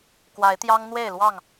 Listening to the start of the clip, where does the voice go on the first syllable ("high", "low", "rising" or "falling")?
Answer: rising